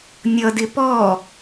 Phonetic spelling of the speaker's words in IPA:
nʲ ʌ d ɪ p ɔ

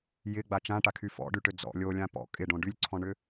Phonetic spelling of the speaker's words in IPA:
j ɪ ɡ͡b a t͡ʃ ã ʈ a kʰ y f ɔ̰ ɖ y ʈ ø d͡z ɔ̰ lʲ o lʲ ã p ɔ̰ kʼ ɪ ɖ õ ɖ y lʲ ǀʰ ɔ̃ ɳ ʏ

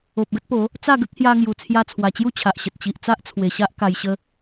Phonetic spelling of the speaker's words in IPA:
o˨ p̚ ɡ ə˦ t̚ p o˨˦ | t͡s a˥˧ ɡ ə˦ k̚ h j a˧ ŋ j u˨˩ t͡sʰ j a˧ t͡sʰ w a˨˩ t͡ɕ j u˥˧ t͡ɕʰ a˨ ʔ ɕ ə˨ t̚ t͡ɕ i˨ ʔ t͡s a˦ ʔ t͡sʰ w e˨˩ ɕ a˦ ʔ k a˧ j ɕ ə˦

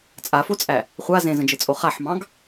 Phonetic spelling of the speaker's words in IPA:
t͡sʼ a f o t͡sʼ æ | χʷ a z ẽ z ə̃ d͡ʒ ɘ t͡sʼ o χ a ħ m ɑ̃ ɡ

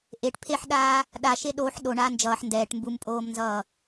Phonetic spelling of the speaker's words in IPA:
ʔ e ʈ pʰ e ħ ɗ aː | ɗ a ʃ e ɗ oː ħ ɗ o ɳ aː n d͡ʒ ʌː ħ n d ɛː ʈ m b u m pʼ oː m n z ʌː

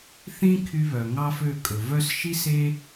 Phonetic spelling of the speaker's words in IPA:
θ ĩ˦ kʰ y˧ β œ˨ ŋ ɑ˦ f ø˦˨ kʼ ɵ˨ v œ˦ s ʃ i˦ s e˦

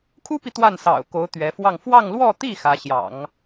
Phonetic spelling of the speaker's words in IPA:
kʰ u˥ p i˨ t̪ w a˥˩ n s ɑ̰˨˩ ʊ̯ k o˧˥ ʊ̯ t̪ ɥ ɛ˧˥ f w ɑ˥˧ ŋ f w ɑ˥˧ ŋ l w ɔ˥˧ t̪ i˥˩ x ä˧˥ ɕ j ɑ̰˨˩˦ ŋ

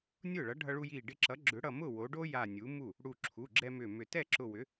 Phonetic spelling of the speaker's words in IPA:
nʲ ʊː˥˩ ɭ ʌ˨˥ ɖʱ ʌ˧ ɭ u˧ j iː˧˩ ɖ ɪ˧ ǁ ʌ˨˥ ɡ͡ǁ ʏ˨˥ ɽ ʌ˧˩ m ʊ˥˩ w o˨˥ ɖ o˥ j a˧˩ nʲ u˨˥ m u˥˩ | ɽ u˧˩ ǁʰ u˩˧˩ ɡ͡ǁ ɛ˧ m ʏ˧˩ m ʏ˧˩ t ɛ˥˩ ǁ ʊ˧˩ w ʏ˨˥

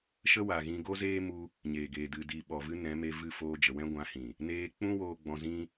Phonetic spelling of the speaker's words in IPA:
ʃ ə˦ w a˨ ɣ ĩ˧ ɡ o˦ z eː˦ m u˧ | ɲ eː˨ ɡ eː˨ d ɨ˨ d i˨ ɓ ɔ˨ v ɨ˧ n ɛ̃˨˦ m e˧ v ɨ˦˨ f oː˧ d͡ʒ ə˨ w ɛ̃˦ ɡʷ ã˨˦ h ĩ˨ | n eː˧ k͡p ũ˦ w oː˧ ɡ͡b ɔ̃˧ z ĩ˦

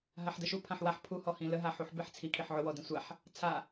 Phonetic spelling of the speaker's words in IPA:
ɦ a ħ d ə ʃ u pʰ ã ħ w a ħ pʰ u h ɔ h ĩ l ə ɦ a ħ u ħ b e ħ t͡sʰ i kʰ i ħ ʕ ʊ w ɔ d ĩ sʷ a ħ | t͡sʰ a

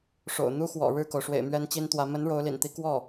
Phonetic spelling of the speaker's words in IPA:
ʂ o̰˨˩ ʊ̯ n̪ u˥ x w ɔ̰˨˩ ɻ ɻ̩˥˩ k o˩ ʊ̯ ʂ w ḛ˨˩ ɪ̯ m ɥ ɛ˥ n t͡ɕ i˥ n t̪ w ä˧˥ m ə˧˥ n ɻ o˧˥ ʊ̯ l ḭ˨˩ n t̪ i˧˥ k w ɔ˥˩

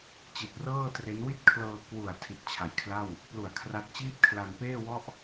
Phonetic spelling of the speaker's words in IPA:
t͡ɕ i˨˩ t̚ r ɤː˥˩ t r e˦˥ n w i˥˩ t̚ kʰ l ɤː˧ k w u˨˩ a̯ tʰ i˨˩ t̚ t͡ɕʰ a˩˦ j kʰ l a˥˩ w | p l u˨˩ a̯ kʰ r a˦˥ t̚ t͡ɕ iː˥˩ p̚ kʰ l a˧ n p eː˥˩ w ɔ˥˩ ʔ

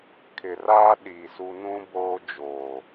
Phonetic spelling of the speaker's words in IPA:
kʰ ɪ˨ r aː˦ ɗ iː˨ s u˦ n ũ˦ b oː˦ d͡ʒ oː˨

